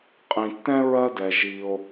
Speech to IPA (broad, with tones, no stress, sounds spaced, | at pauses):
qʼ ĩ˩ tː ɛ̃˥ ɹ ɜ˦ d ɛ˩ ʒ i˨ o̯